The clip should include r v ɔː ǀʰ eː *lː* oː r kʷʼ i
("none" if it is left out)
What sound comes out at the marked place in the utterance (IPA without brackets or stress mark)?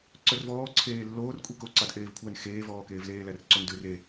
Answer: lː